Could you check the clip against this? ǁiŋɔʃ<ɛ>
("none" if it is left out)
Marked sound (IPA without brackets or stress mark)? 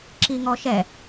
ɛ